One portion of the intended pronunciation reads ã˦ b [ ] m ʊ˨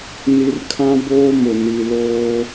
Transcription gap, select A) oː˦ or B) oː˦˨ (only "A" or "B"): A